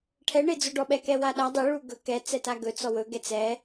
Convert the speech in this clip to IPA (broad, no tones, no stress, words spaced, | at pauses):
ʈʰɛɳed͡zɵɖɔ ɓɛkɛwaɗa dˤeɭu ɡɵ kɛ t͡sɛtaɡɵ t͡sɔwɵ ɡɛt͡sɛ